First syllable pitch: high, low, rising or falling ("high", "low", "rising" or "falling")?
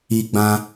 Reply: high